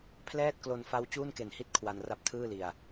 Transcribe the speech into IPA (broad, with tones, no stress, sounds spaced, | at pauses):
pʰ l ɛː˥˩ t̚ k l o˧ n f a˦˥ w t͡ɕ uː˥˩ n k e˨˩ n h i˥˩ t̚ kʰ w a˧ n r a˦˥ p̚ tʰ ɯː˥˩ l i˨˩ a̯